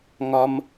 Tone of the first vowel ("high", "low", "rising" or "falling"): low